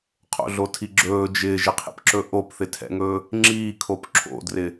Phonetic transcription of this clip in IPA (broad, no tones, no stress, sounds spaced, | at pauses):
qʰ o̰ ɮ o tʰ i ɡ͡ǁ ɵː d͡ʒ ɪː ʒ ɪ qʰ ḭ p ǁ ɵ ʔ o p θ ɪ tʰ ɛ̰ ŋ ɵː | ŋ͡ǁ iː kʰ o p ǁʰ o̰ d r ɪ